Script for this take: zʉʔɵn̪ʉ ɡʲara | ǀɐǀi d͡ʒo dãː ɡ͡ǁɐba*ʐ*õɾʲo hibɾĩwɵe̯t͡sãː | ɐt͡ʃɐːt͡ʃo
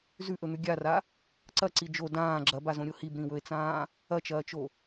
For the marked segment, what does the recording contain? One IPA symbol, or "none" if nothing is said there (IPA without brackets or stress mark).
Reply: z